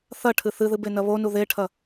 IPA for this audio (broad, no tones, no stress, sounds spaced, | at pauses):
θ ɐ ʈʰ ɨ θ ɨ ð ɨ b e n ɐ β o n u ð e ʈʰ ɐ